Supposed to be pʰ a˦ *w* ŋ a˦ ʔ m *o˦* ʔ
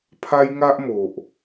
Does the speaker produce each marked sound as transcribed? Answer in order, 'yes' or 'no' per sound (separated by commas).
no, no